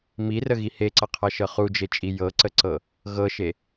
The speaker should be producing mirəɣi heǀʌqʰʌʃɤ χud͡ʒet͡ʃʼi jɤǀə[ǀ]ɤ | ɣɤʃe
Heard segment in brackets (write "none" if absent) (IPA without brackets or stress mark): ǀ